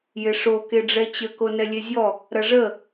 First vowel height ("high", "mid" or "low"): high